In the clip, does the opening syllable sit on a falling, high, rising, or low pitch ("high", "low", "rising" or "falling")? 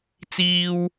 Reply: high